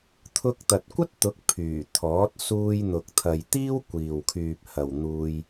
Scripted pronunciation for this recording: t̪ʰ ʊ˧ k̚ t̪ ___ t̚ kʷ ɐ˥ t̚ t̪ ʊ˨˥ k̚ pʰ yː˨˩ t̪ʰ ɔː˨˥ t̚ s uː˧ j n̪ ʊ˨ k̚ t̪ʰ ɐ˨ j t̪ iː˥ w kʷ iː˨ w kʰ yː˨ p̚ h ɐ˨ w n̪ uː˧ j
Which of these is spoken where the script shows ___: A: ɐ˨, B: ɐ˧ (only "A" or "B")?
A